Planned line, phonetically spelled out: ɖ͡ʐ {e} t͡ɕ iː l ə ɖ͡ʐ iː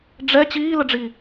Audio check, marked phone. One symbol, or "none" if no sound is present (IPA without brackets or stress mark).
ɛ